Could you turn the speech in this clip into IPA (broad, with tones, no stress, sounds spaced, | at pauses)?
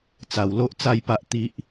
t͡s a˨˩ w l o˦ ʔ t͡s a˥˧ j p a˦ ʔ t̪ i˦ ʔ